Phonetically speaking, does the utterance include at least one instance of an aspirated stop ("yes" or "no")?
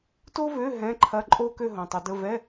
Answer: yes